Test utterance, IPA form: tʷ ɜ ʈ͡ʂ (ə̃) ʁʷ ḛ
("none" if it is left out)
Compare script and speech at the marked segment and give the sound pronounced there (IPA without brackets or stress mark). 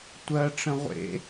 ə̃